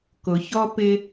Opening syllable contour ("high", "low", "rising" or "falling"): low